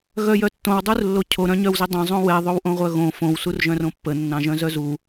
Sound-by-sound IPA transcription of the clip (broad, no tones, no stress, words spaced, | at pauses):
ɣœjœtːõw dˤurlːocʰo ɾœ̃ɲœwzidˤœ̃ zˤõwɛ ðˤowʔõʁʷœɣõ fõw surʒœ̃rõpːə nːɑ̃ʒœ̃zœzu